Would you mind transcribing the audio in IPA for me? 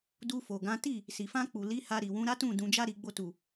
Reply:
d u˧ f o˨ ɡ ã˨˦ t i˦˨ | s i˨ f ã˧ k͡p u˨ l i˨˦ h a˧ ɾ i˨ w ũ˨˦ ɾ a˦ t ũ˦˨ d ũ˧ d͡ʒ a˦ ɾ i˧ ɡ͡b o˧ t u˨

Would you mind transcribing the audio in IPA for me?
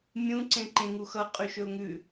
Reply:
mʲ ũ ǀ ẽ ǃ ẽ ŋ u x ʌ qʼ ʉ ʃ ɵ ʊ̯ ŋ ʉ

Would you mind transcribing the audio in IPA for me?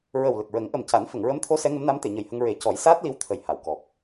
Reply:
ɹ ə˨˩ w l ə˨˩ k̚ ɹ ə˨˩˦ ŋ ʔ ə˨˩ m c a˨˩˦ n f ə˨˩˨ ŋ ɹ ə˧˥ m t̪ʰ o˧˥ s ɛ˧˥ ŋ ə˧˥ m n a˧˥ m t̪ e˨˩˨ ɲ ə˨˩ j h ə˧ ŋ ɹ e˨˩˦ c ɔ˨˩˦ j s aː˦˥ t̚ l i˧˥ w t̪ʰ ə˨˩ j h a˨˩˨ w k ɔ˨˩ k̚

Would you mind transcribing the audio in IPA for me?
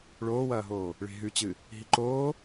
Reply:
ɭ oː w ɐː ɦ oː | ɭ e̤ ɦ ʉ t͡ɕ ɨ | ɦ i ǃ oː

